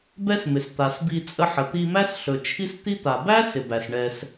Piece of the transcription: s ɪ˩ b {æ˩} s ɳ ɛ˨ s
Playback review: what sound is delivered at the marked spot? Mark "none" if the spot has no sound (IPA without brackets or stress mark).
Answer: æ˩